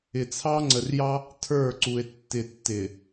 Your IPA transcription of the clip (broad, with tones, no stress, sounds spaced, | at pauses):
ɪ˨ t͡sʰ ɑ˦ ŋ͡ǀ ə˨ r j ɑ˦ | tʰ ə˞˦˨ ǀ u˨ e̯ tː ɪ˨ tː ɪ˨